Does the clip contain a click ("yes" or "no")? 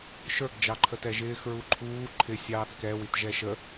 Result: yes